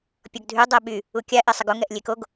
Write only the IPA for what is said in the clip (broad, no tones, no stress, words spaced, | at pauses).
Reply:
pʲɔɡdʱy dˤɛɓy | ukʲa ʔesˤəɡo ŋɛʔlʲekoɡ